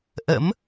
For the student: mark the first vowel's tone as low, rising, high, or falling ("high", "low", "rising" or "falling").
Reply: rising